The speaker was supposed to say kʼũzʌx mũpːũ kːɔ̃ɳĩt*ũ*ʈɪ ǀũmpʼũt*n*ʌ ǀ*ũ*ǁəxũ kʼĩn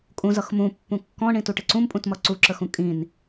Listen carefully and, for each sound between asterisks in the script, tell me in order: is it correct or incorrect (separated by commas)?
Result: incorrect, incorrect, incorrect